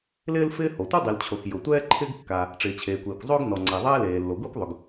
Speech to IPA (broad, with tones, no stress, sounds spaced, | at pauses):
l ɪː˥ l f ɪː˥ h o˩ tʷ ɛ˥ dˤ i˩ l t͡ɕʰ o˩ x j ʊ˩ tʷ ɛː˥ ǃʰ ɪ˥ ɡ kː a˩ | ʈ͡ʂ ɪː˩ t͡ɕʰ eː˩ kʷ eː˩ kʷ zˤ ʊː˥ ɡ n ɔ˩ ŋ͡ǀ ɛ˩ ðˤ ɛː˥ l eː˩ lː o˩ ɡʷ i˥ kʷ ðˤ ʊ˩ ɡ